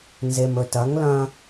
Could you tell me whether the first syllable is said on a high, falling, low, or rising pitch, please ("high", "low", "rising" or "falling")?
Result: low